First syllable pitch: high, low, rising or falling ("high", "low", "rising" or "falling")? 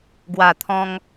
low